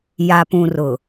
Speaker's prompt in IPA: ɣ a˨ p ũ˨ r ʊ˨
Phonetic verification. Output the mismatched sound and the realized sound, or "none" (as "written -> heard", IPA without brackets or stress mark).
ɣ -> j